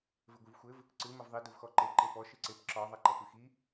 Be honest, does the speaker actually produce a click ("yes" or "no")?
yes